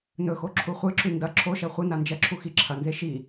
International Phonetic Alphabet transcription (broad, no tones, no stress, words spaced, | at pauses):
nɵxo ǁʰuχʷɨǁʉ ndɐ ǁʰoʃɐ χʷɨna nd͡ʒɐǁʰu xiǁʰɐnze ʃi